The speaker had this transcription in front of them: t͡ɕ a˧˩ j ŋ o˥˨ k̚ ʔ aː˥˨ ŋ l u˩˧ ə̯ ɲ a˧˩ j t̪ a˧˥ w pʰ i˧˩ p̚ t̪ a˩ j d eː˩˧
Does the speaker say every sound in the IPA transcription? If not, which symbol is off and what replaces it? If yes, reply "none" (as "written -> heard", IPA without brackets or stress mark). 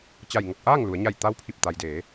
none